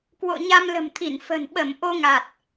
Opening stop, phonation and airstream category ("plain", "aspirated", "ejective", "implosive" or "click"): plain